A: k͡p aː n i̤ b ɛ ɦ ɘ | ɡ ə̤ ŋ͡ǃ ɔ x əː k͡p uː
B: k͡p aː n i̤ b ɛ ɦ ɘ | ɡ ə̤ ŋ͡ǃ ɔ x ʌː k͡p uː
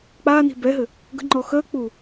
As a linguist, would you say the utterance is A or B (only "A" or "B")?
A